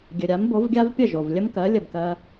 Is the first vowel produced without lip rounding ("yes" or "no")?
yes